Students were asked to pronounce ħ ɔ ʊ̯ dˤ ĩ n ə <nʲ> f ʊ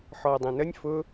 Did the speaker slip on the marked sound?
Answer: no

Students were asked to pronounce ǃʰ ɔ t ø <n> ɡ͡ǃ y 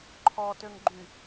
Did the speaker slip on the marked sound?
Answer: yes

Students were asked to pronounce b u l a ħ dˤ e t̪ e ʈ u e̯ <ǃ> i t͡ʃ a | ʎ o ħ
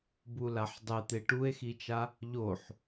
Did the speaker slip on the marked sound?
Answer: yes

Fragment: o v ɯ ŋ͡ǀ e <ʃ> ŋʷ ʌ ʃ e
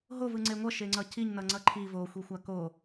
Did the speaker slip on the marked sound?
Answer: yes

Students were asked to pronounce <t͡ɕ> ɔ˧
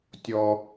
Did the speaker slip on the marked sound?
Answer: yes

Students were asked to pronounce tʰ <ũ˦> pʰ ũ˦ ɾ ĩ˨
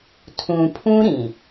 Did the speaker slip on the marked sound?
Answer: yes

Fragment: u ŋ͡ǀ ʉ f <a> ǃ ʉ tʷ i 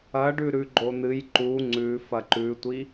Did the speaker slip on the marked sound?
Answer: yes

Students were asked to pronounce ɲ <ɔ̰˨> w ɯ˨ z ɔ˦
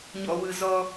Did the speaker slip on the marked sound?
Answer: no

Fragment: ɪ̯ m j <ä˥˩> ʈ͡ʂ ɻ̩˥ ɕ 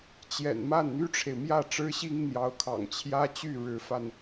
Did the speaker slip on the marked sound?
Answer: no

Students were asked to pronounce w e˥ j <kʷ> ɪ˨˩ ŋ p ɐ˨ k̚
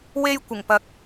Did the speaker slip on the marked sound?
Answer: no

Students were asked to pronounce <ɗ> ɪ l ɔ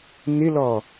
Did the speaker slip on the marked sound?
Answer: yes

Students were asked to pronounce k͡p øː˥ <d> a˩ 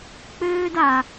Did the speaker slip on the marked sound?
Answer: no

